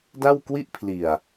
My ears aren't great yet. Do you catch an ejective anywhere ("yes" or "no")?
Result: no